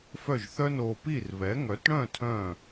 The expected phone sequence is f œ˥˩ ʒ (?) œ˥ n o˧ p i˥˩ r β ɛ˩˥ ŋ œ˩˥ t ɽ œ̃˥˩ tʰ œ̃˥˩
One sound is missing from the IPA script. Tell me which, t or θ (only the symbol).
θ